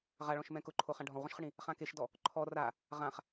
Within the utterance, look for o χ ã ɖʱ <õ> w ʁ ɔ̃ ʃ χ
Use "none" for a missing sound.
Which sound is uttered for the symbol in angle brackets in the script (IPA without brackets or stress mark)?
ɔ̃